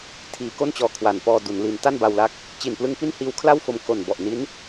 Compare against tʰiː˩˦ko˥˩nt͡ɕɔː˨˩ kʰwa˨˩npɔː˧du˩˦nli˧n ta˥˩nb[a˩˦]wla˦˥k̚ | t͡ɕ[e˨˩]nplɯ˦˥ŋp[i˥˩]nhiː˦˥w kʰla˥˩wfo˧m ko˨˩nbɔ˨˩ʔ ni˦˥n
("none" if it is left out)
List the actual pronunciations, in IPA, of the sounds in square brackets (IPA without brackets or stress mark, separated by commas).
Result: a˧, i˨˩, i˥˩